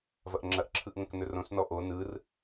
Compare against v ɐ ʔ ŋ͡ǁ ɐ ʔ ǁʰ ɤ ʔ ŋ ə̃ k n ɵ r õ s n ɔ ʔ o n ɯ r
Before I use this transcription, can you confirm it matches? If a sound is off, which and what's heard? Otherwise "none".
ɤ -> ɯ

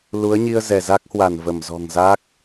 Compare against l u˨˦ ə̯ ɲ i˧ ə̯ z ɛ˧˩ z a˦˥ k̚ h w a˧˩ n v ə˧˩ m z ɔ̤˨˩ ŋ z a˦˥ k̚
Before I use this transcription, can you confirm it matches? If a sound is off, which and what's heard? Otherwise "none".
none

